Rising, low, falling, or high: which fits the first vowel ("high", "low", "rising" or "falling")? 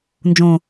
low